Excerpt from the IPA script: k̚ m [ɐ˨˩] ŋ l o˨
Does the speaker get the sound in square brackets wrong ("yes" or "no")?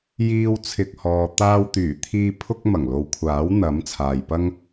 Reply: no